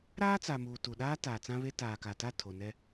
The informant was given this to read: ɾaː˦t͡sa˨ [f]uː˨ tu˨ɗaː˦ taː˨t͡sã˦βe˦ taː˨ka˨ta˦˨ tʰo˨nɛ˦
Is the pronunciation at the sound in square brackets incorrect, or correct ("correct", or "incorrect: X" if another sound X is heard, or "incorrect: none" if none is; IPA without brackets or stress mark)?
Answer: incorrect: m